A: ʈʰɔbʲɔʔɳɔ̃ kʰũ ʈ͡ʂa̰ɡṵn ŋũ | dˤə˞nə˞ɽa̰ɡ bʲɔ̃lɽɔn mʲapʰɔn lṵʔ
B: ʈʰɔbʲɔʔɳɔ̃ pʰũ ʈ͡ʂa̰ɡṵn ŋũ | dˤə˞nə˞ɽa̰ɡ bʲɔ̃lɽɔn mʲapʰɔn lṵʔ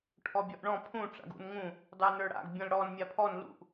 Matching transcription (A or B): B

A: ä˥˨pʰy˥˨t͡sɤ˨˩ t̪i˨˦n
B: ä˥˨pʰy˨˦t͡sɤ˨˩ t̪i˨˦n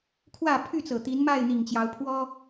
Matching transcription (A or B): A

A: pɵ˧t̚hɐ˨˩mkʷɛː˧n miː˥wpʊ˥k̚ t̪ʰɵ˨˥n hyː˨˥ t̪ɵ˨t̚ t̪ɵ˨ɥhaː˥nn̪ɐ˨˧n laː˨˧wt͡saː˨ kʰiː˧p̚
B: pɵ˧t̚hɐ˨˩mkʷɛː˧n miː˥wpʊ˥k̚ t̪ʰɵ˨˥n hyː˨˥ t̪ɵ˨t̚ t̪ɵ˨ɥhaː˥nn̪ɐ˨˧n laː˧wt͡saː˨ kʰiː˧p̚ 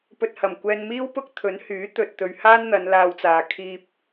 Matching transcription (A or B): B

